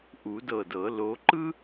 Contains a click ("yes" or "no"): yes